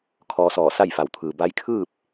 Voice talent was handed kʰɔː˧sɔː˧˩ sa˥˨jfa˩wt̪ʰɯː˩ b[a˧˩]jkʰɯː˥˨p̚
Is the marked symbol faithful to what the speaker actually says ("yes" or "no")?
no